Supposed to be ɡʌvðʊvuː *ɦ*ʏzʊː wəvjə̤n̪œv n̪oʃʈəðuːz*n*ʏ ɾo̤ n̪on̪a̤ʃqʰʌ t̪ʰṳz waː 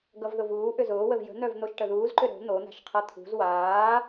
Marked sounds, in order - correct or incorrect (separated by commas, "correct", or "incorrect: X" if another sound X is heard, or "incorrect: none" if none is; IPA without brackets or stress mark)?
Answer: incorrect: ʔ, incorrect: ǃ